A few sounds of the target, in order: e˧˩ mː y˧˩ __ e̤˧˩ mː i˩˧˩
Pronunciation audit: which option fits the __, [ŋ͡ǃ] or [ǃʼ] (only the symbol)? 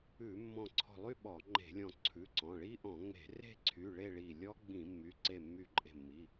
ǃʼ